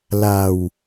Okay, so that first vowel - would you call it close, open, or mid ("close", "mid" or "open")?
open